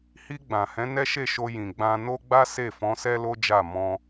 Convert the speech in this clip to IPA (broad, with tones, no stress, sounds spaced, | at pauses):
h i˧ ɡ͡b ã˨ h ɛ̃˨˦ n ɛ˦ ʃ e˦˨ ʃ o˧ j ĩ˨ ɡ͡b ã˧ n o˦ ɡ͡b a˦ s e˦˨ f ɔ̃˨˦ s ɛ˦ l o˦ d͡ʒ a˦˨ m ɔ̃˧